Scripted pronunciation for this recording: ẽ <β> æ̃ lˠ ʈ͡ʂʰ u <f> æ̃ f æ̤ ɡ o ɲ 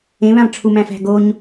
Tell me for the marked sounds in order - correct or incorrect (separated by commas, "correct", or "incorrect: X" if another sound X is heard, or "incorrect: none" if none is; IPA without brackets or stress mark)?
correct, incorrect: m